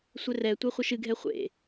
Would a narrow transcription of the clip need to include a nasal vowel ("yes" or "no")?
no